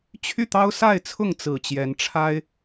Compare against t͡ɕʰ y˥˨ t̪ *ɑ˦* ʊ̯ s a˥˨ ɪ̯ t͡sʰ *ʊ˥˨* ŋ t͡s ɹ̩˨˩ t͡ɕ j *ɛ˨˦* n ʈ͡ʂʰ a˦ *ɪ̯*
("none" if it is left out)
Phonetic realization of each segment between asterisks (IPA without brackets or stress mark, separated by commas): ɑ˦, ʊ˥˨, ɛ˨˦, ɪ̯